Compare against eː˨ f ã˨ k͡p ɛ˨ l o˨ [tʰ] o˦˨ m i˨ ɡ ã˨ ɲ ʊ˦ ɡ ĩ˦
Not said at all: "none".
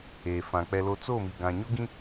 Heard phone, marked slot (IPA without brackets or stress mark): t͡s